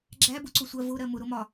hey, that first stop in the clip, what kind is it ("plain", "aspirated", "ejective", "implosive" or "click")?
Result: click